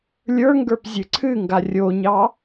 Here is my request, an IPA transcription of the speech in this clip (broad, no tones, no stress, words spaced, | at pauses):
lʲə˞ŋɡə˞p zʲɨǀʰɨŋɡa rʲoɲɑ